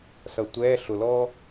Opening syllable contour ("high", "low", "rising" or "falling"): low